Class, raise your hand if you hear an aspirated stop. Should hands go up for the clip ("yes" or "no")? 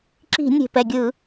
no